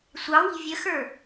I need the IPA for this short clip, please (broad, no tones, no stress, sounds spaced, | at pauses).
sʷ ɑ w i̤ vʲ ə x ə˞